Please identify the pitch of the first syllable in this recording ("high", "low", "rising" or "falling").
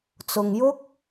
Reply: low